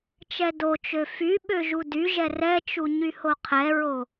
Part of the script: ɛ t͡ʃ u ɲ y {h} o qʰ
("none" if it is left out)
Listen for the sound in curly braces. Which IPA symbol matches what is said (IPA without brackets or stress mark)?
h